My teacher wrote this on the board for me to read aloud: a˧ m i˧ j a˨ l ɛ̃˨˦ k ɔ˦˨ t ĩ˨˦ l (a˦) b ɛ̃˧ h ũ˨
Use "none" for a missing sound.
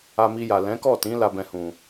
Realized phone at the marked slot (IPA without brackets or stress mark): a˦